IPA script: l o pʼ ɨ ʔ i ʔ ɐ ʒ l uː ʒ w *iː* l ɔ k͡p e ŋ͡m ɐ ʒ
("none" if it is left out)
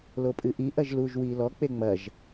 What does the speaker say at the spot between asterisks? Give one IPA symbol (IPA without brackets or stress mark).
iː